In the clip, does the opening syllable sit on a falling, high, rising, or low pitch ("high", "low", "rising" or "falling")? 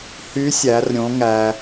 rising